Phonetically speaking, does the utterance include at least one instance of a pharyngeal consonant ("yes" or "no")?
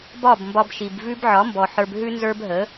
yes